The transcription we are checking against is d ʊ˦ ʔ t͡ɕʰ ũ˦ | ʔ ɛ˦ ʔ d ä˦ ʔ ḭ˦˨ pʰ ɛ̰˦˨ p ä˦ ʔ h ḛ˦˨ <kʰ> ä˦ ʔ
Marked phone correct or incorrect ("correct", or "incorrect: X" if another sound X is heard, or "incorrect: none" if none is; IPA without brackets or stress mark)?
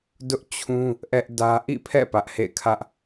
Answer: correct